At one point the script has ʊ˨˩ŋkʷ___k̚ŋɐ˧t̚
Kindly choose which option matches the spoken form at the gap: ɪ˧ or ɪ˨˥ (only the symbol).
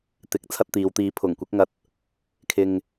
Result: ɪ˨˥